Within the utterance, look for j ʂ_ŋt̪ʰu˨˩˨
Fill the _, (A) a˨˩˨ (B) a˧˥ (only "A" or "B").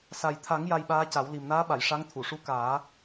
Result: B